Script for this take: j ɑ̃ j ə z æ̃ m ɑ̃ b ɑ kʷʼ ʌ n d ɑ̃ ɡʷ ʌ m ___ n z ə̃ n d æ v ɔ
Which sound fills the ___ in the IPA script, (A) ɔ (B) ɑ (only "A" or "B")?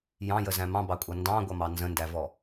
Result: B